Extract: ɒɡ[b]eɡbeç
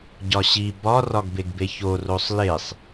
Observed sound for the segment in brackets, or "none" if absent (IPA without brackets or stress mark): b